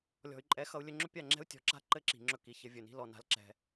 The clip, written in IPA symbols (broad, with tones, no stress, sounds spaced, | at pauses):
lʲ ɔ̤˨ y̯ ǃʼ ɛ˨˦ x ʌ˧ u̯ lʲ ɵ˧ ŋ͡ǁ ɵ˦ pʲ a˦˨ ŋ͡ǁ ɛ̤˦ u̯ tʲ ɔ̤˨ ǁ a̤˦ ǃ ɘ˦ ǁ i̤˨ ŋ͡ǁ ɵ˧ k i˨ ç ɘ˧ vʲ ɵ˨ n i̤˦ l ɔ˧ n a̤˧ l ǁ ɛ̤˧